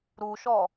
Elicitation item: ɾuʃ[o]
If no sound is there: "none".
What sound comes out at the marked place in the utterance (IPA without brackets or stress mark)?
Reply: ɔ